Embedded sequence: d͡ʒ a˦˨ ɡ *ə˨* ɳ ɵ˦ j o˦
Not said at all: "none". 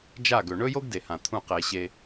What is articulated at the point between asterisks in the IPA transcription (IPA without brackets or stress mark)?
ɵ˨